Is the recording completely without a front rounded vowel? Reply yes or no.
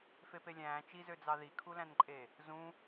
no